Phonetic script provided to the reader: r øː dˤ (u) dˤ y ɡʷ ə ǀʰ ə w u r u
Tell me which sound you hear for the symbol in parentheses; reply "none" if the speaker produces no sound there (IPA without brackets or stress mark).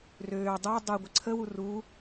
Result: u